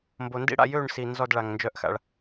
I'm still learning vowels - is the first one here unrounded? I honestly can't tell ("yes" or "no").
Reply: no